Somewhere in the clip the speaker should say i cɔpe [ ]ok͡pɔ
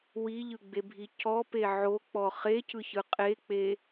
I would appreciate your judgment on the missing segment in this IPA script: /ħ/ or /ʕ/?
ʕ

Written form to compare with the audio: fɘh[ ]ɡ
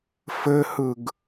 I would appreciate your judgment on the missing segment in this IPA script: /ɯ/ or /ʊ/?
ɯ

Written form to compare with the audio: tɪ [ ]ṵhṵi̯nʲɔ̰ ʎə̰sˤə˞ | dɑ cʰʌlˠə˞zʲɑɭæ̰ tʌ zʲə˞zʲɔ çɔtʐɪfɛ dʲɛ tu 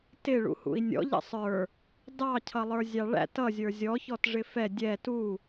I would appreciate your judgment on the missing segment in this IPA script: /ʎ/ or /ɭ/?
ɭ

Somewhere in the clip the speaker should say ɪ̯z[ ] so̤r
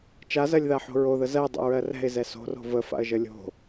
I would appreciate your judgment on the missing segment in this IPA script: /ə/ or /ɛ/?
ɛ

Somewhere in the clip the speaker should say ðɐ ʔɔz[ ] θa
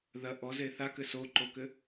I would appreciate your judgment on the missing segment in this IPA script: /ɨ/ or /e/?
e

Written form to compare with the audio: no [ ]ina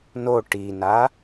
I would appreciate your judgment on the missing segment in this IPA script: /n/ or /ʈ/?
ʈ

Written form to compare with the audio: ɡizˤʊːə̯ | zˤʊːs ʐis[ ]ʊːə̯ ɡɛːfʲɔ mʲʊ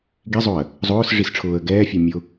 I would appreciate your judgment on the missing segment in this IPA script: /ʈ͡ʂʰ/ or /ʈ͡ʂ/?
ʈ͡ʂʰ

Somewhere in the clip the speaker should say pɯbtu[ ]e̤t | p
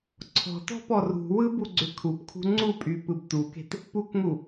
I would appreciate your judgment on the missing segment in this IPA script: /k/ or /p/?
k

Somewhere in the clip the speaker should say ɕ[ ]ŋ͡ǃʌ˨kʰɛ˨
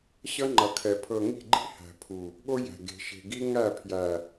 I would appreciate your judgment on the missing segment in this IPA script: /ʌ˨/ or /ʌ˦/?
ʌ˦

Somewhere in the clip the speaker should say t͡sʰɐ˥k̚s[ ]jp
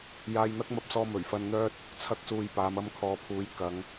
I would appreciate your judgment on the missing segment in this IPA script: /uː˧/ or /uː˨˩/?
uː˧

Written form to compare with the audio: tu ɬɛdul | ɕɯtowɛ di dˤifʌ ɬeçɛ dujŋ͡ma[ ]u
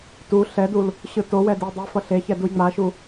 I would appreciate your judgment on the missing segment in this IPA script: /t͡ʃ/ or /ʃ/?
ʃ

